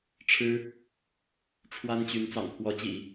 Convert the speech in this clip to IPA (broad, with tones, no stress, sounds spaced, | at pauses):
ʈ͡ʂʰ ɻ̩˥ | ʈ͡ʂʰ w a˥ n t͡ɕ y˧˥ n t͡s ɑ̰˨˩ ŋ pʰ w ɔ˧˥ t͡ɕ ḭ˨˩˦